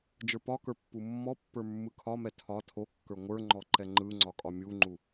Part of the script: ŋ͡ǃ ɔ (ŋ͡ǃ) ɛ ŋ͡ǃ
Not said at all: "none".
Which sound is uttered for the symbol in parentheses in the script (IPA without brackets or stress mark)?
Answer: ǃ